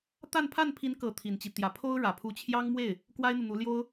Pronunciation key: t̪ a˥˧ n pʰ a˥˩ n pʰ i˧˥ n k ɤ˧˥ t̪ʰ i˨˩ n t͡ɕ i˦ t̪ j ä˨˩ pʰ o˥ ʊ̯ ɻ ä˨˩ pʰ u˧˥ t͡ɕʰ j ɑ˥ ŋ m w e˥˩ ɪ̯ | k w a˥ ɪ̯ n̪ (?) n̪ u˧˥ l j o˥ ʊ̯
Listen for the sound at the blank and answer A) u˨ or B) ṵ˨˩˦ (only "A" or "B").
A